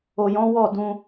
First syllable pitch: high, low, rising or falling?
low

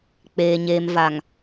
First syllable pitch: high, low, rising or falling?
low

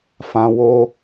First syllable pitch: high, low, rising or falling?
high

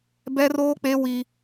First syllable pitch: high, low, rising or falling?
high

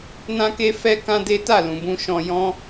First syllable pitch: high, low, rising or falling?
high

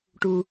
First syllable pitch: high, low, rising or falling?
low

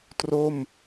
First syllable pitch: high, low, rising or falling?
falling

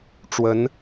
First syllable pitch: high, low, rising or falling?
rising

